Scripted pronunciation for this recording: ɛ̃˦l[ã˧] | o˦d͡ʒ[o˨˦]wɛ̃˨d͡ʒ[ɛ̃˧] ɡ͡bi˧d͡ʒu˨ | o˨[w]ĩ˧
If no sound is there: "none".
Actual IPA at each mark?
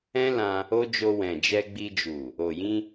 ã˧, o˧, ɛ˧, j

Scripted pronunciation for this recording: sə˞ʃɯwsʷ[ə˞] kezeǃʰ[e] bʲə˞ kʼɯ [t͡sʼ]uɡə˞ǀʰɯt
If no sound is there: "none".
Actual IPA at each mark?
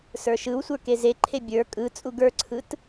ə˞, e, t͡sʼ

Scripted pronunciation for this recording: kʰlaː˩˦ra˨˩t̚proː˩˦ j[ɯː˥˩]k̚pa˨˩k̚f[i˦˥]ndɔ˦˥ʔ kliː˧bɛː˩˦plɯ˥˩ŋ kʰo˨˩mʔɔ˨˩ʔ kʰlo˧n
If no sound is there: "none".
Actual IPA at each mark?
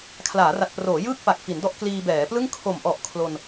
ɯː˥˩, i˩˦

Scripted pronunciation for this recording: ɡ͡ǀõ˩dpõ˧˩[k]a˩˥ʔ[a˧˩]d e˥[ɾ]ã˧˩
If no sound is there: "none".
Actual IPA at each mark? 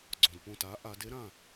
t, a˩˧, ɾ

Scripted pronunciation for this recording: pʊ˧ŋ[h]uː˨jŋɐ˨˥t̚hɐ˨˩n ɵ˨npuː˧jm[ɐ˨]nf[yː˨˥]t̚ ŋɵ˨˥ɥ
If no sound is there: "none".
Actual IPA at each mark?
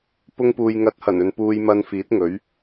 p, ɐ˧, iː˨˥

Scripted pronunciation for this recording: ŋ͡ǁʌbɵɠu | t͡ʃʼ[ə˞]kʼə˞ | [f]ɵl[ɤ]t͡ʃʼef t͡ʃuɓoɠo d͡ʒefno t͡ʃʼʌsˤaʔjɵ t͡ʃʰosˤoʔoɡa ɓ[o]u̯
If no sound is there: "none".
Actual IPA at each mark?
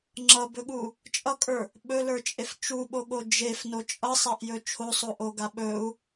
ʌ, ɓ, ə˞, ɵ

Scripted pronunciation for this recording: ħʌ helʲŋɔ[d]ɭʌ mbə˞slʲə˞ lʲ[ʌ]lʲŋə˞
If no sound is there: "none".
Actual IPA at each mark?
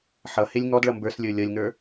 d, ʌ

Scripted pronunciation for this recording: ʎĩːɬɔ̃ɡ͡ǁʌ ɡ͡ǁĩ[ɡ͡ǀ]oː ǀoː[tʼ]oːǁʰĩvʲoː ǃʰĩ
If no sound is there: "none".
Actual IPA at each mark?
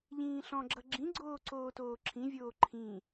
ɡ͡ǀ, t

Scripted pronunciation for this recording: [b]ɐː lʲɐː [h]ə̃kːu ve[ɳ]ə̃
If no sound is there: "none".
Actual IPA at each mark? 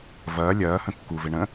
v, h, ɳ

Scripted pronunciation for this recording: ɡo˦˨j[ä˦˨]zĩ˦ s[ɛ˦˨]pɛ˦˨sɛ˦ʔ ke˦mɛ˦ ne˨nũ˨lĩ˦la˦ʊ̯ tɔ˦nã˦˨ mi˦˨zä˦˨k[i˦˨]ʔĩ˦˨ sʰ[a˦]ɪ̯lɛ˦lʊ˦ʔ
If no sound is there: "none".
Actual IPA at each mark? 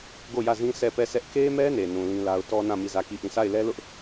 ä˦˨, ɛ˦˨, i˦˨, a˦˨

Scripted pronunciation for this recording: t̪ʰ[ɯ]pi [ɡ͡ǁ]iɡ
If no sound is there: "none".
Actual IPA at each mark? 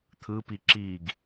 ɯ, ǁ

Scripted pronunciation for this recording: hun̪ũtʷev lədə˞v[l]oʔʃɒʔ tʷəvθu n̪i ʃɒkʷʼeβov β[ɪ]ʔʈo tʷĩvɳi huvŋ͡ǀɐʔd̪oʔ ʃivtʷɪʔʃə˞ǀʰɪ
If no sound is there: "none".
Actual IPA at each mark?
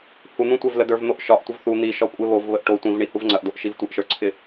n̪, ə

